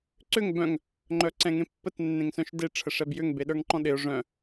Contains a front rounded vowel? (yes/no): yes